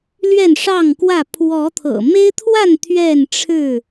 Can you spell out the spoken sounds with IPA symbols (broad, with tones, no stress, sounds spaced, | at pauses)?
l ɥ ɛ˥˨ n ʂ ɑ˥˨ ŋ k w ä˥˨ pʰ w ɔ˨˦ t̪ʰ ɤ̰˨˩ m e˦ ɪ̯ t̪ʰ w a˥˨ n t̪ʰ ɥ ɛ˥˨ n ʈ͡ʂʰ ɻ̩˥˨